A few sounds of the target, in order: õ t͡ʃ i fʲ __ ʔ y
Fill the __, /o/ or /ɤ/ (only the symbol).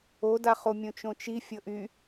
ɤ